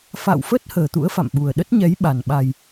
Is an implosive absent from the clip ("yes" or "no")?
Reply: no